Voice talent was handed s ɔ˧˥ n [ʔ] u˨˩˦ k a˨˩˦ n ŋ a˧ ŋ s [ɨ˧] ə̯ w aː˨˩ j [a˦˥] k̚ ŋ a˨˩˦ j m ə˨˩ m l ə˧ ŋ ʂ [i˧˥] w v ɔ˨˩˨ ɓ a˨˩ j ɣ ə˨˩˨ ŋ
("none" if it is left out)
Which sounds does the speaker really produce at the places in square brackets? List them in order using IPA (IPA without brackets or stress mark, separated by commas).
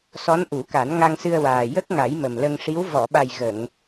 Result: ʔ, ɨ˧, ə˦˥, i˧˥